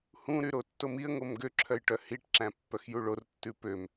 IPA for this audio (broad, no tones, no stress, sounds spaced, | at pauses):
h ũ ɾ y ɾ o tː o m i ə̯ ŋ o m ɡ ø ǁʰ œ j ʈ œ h i ʈ ǁ æ̃ pː œ x j u ɭ o r tː ʉ p ø m